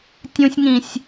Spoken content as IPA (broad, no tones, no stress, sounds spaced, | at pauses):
tʲ ũ sʲ ŋ ĩ sʲ